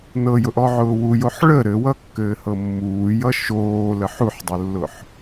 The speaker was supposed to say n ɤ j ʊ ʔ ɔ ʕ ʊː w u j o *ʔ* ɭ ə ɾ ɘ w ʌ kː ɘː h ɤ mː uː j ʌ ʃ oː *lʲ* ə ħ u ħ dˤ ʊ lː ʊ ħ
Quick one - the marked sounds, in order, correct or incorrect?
incorrect: ħ, incorrect: l

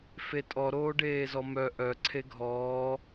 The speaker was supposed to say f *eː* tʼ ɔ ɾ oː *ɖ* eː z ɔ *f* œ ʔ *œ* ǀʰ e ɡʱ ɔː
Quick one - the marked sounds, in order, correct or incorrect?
incorrect: e, correct, incorrect: m, correct

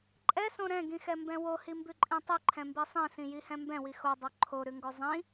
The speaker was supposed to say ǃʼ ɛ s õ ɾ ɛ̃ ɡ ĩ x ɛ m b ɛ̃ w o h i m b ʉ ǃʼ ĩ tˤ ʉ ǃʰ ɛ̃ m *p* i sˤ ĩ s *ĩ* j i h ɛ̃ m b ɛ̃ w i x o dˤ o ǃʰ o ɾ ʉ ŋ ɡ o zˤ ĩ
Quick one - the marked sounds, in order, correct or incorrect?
incorrect: b, correct

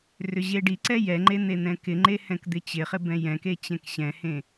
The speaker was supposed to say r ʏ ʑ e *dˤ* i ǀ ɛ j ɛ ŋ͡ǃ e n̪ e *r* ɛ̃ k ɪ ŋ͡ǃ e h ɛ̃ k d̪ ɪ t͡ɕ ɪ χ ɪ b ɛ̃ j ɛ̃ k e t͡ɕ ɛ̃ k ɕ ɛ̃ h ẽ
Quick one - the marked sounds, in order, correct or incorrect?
incorrect: ɖ, incorrect: n̪

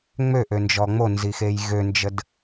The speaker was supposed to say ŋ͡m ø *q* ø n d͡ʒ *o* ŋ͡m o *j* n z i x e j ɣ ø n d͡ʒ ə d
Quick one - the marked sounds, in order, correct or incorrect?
incorrect: ʔ, incorrect: ɔ, incorrect: none

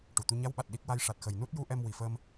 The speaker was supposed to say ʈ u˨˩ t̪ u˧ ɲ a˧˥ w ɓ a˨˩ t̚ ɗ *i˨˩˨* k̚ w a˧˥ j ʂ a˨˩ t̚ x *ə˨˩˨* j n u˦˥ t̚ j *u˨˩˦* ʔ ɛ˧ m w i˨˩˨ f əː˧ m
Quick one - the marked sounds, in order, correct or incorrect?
incorrect: i˦˥, incorrect: ə˨˩, incorrect: u˧˥

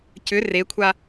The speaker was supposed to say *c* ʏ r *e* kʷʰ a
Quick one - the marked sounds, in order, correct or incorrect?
correct, correct

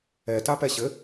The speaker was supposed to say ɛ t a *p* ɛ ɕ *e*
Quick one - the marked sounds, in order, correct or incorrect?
correct, incorrect: ɘ

